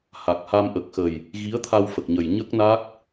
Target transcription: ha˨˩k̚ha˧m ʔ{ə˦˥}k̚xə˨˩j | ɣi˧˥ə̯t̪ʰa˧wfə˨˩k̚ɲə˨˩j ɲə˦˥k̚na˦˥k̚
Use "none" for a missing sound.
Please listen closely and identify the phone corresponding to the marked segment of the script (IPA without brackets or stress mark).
ə˨˩